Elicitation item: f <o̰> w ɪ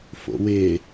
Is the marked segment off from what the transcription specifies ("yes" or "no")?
no